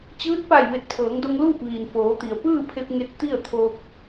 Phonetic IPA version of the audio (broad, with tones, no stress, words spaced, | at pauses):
t͡ɕɯː˧˥t̚pa˧˩j ʋe˧˩t̚pʰɤː˩˧ŋdo˧ŋ luː˥˨p̚ʋiː˩nfoː˩˧t̪i˩ə̯ pɯː˥˨pʰe˧p̚ŋe˧t̚ t̪i˥˨ə̯t̪ʰo˧k̚